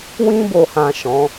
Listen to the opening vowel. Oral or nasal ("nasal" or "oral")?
nasal